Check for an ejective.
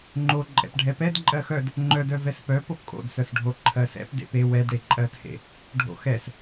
present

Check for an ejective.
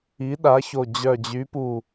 absent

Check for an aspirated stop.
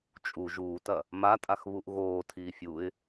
present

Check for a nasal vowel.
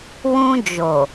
present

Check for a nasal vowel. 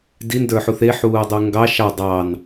absent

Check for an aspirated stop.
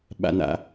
absent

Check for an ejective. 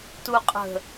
present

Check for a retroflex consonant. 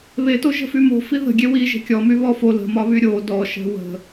absent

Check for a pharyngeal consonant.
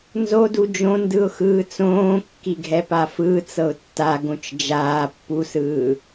absent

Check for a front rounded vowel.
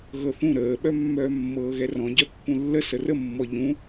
present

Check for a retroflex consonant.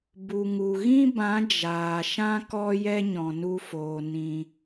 absent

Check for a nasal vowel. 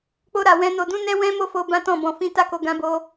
present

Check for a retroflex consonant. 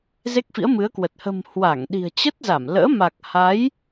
absent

